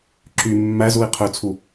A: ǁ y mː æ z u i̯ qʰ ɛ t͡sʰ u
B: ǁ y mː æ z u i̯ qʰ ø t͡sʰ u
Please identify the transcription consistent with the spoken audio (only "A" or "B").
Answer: B